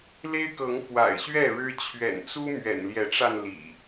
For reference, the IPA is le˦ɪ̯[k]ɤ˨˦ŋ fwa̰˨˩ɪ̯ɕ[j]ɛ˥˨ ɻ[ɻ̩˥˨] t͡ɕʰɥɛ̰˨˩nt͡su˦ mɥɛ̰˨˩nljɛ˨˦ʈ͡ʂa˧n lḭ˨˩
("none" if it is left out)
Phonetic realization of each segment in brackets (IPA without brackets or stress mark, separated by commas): k, ɥ, ɻ̩˦